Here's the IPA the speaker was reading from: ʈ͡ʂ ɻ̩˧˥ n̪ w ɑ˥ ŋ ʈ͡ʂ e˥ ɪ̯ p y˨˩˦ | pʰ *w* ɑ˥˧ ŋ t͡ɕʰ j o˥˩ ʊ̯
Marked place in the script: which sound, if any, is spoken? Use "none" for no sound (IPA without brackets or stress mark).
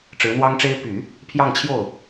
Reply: j